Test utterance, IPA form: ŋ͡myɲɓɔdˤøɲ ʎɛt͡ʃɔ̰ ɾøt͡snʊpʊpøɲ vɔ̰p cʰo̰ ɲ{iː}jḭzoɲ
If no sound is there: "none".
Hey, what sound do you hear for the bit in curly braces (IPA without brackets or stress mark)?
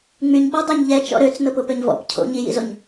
i